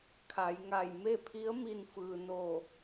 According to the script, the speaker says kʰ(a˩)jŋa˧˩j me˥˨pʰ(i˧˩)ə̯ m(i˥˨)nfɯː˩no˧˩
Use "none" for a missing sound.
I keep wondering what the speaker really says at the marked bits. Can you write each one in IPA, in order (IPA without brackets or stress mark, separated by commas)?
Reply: a˩˧, i˧˥, i˧